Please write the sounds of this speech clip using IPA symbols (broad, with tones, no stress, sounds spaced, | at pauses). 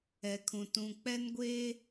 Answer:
ɛ˨ kʰ ũ˨ t ũ˨ k͡p ɛ˦ n ɡʷ eː˦